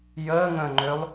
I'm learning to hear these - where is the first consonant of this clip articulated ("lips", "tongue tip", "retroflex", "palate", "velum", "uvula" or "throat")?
palate